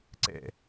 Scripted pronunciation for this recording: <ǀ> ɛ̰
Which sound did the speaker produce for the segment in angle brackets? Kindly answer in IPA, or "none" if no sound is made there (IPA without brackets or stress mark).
ǀ